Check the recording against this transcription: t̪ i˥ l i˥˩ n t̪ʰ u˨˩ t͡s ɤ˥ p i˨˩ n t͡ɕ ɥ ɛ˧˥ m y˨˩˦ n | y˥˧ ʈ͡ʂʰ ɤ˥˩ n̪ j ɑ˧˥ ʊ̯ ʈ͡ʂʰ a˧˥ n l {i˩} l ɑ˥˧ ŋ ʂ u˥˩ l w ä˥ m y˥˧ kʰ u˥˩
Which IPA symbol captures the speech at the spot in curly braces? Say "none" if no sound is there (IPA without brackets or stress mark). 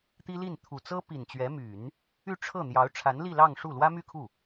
i˥˧